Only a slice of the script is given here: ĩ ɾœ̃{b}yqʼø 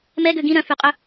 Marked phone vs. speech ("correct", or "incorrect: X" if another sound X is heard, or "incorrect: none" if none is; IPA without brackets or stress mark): incorrect: f